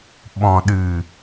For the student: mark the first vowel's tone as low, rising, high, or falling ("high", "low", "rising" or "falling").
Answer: low